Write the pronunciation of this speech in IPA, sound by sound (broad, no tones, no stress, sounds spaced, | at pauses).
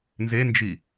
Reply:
n z e n d͡ʒ i